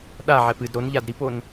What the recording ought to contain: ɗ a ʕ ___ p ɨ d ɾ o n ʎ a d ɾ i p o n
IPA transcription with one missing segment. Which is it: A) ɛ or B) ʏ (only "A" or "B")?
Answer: A